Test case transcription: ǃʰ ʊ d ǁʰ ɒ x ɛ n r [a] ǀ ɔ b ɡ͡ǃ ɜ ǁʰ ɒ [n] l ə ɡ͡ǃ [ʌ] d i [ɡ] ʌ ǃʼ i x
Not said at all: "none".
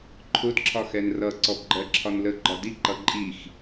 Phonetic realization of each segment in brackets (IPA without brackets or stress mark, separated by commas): ʌ, n, ɒ, ǃ